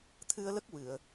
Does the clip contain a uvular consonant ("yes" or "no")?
no